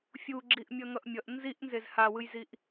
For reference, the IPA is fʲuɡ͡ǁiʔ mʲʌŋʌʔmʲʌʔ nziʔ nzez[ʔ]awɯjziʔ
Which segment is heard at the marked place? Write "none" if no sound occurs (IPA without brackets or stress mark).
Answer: h